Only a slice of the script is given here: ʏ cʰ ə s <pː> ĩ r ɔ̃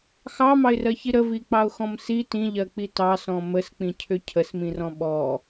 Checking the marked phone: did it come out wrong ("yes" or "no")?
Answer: yes